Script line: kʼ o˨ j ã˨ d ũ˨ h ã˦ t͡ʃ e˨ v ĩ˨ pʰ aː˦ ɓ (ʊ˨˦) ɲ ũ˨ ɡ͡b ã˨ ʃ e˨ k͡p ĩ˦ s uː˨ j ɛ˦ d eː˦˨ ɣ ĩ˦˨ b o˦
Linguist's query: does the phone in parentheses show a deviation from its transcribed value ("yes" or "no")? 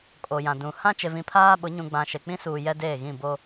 no